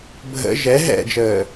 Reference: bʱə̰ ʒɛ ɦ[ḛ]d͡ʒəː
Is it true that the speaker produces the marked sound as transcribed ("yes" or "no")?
no